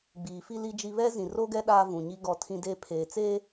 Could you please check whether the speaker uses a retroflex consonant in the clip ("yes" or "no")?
no